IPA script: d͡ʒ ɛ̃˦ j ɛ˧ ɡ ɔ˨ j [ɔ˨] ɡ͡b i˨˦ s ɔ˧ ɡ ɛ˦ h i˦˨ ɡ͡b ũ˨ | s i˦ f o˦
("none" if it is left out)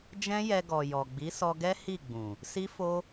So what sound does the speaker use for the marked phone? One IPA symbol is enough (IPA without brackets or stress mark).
ɔ˨